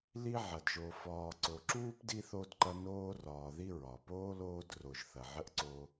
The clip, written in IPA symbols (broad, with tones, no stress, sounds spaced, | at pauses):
l i˥ ʕ ɐ˩ d ʒ o˨ f ɒː˨ ǀ o˨ ǁ uː˥ p d i˦ θ o˦ d ǃ ɐ˦ n oː˦ r ɒː˨ ð i˦ ɹ ɒ˩ p oː˥ l oː˦ d r o˨ ʒ θ ɐ˨ ʕ ə˥ ʔ ǀ o˦